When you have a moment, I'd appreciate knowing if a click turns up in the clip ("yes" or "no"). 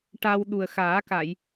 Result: no